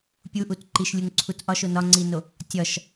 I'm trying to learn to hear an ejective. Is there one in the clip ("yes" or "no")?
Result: no